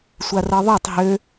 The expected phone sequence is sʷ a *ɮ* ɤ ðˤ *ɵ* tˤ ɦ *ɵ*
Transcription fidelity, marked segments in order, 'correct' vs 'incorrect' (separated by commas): incorrect, correct, incorrect